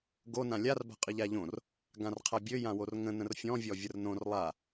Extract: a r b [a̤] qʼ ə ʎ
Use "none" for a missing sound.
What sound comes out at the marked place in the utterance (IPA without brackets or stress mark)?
a̤